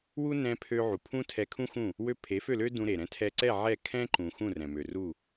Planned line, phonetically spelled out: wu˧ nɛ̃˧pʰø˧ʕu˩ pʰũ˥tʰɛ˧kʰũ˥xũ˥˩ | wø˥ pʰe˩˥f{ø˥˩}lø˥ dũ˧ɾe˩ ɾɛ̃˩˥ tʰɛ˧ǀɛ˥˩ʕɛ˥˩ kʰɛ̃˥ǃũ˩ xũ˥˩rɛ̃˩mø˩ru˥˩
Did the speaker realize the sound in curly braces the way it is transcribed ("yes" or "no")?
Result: yes